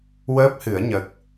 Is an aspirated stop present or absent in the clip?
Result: absent